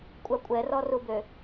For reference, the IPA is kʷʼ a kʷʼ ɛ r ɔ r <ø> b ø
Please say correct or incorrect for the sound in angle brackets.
incorrect